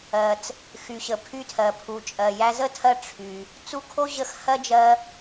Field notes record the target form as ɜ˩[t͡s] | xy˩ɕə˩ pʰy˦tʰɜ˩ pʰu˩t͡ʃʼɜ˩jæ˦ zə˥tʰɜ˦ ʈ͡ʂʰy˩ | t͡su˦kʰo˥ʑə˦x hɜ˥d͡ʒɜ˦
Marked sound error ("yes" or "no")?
no